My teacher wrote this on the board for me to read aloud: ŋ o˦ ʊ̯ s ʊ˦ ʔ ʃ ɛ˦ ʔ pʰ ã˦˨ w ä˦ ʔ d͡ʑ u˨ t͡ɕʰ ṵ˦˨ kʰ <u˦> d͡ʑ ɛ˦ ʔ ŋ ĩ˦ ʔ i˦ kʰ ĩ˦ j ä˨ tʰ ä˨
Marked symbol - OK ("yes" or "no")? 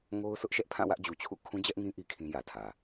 no